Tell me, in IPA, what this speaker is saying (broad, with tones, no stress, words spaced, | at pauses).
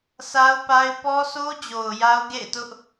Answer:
sa˦ʊ̯pa˦ɪ̯ pɔ˦sʰo˦ d͡ʑo˨ʊ̯ ja˦ʊ̯ɡḛ˦˨ɪ̯tʊ˦ʔ